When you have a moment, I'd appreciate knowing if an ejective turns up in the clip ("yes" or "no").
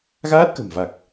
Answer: no